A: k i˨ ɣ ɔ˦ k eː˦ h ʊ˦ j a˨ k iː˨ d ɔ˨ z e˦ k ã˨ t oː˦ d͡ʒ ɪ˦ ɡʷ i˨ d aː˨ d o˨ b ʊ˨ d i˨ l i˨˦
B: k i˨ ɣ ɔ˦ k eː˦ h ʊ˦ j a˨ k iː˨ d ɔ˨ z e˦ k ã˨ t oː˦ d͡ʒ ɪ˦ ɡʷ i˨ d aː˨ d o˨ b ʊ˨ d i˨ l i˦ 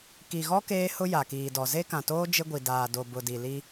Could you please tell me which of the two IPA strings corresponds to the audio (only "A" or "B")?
B